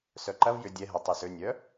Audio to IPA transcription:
s œ ǃ ɐ v j ʏ dʲ ɛ ɦ ə tˤ y s ø nʲ œ

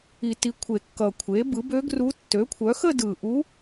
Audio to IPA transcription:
i˨˩˦ t i˩˥ kʷʰ e˨˩˦ kː ʌ˨˩ kʷʰ e˩˥ b ɯ˩˥ b ø˧˥ ɡ r u˧˥ tː ø˩˥ kʷʰ œ˩˥ x ə˥˧ d ɯ˨˩ ʔ u˧˥

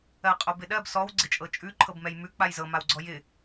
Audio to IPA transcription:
ɜ qʼ o b ɪ ɗ ɜ b s ɔ w ɡ͡ǀ ɪ t͡ʃʼ ɤ t͡ʃʼ ʉ ǃʰ ɤ b m ɛ j m ʉ k͡p a j z ɤ m a w ɡ͡ǀ ɔ j ɪ

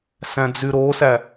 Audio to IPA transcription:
s æ̃ d͡z y ɾ o s æ

